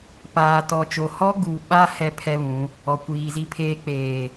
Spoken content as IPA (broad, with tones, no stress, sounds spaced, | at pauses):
p aː˨ t ɔ˨ t͡ʃ o˨ h ɔ˦ ɡ u˨ ɓ a˦ h ɛ˦ pʰ ɛ˦ β ũ˨˦ | ɔ˨ kʷ iː˨ z i˦ pʰ eː˦ k͡p eː˨